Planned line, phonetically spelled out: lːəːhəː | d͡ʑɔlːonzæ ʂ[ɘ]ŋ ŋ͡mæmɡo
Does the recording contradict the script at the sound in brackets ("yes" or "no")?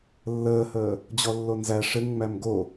no